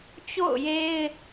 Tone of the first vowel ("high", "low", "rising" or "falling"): falling